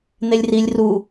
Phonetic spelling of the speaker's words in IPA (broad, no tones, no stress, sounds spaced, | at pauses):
n̪ e lʲ r i lʲ r u